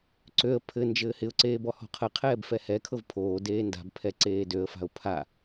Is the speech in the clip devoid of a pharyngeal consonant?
yes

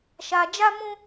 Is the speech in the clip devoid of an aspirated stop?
yes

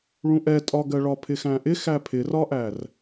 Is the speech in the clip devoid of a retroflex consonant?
no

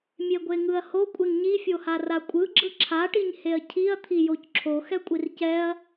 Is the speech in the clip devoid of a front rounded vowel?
yes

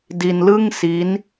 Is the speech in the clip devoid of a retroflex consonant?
yes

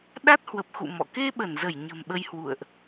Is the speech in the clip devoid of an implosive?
no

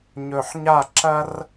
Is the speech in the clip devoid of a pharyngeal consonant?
no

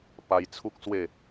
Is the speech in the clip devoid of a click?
yes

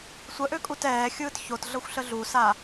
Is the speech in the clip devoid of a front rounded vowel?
no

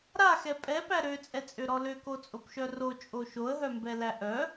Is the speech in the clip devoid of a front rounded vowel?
no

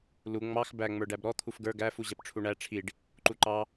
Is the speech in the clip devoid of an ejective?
yes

